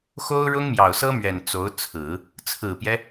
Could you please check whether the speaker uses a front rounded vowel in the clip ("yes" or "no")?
no